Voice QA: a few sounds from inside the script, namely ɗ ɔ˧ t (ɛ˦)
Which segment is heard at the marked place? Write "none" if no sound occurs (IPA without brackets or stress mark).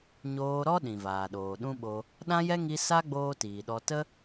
ə˦